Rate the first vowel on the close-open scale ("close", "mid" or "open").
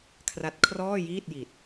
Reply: open